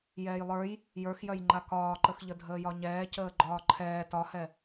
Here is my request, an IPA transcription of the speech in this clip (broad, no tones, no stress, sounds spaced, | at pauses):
j ɛː j lˠ ə˞ j | j ə˞ x j œ j ŋ͡ǃ a k ɒː ǃ ə x ʎ ə dʱ əː j ɒ ɲ ɛː c əː ɡ͡ǃ ɒː ǃʰ ɛː t ɒ h ɛ